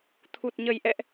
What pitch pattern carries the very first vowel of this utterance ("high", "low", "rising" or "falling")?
low